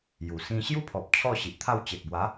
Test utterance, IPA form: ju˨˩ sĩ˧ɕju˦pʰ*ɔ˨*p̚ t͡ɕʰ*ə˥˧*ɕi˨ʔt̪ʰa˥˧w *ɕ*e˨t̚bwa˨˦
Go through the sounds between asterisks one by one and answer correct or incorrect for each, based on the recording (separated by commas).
correct, incorrect, incorrect